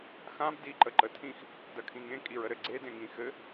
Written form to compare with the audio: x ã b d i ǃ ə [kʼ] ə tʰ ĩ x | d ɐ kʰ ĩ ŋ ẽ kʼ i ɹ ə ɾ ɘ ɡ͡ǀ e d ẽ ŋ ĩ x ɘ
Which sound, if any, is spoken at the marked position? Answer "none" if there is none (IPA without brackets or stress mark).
ǃ